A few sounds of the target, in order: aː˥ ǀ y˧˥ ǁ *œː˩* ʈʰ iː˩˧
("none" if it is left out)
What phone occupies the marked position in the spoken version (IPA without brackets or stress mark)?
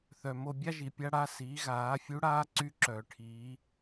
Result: œː˩